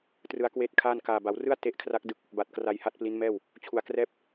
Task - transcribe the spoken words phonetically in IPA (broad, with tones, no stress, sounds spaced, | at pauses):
t r ɯ˦˥ a̯ k w eː˥˩ t̚ kʰ aː˥˩ n k aː˨˩ b a˩˦ w r ɯ˥˩ a̯ t e˦˥ ʔ kʰ r a˦˥ k̚ d ɯ˥˩ k̚ | b a˨˩ t̚ k r a˧ j h a˦˥ t̚ p l i˦˥ n m ɛː˥˩ w | t͡ɕʰ u˨˩ a̯ k r ɛː˦˥ p̚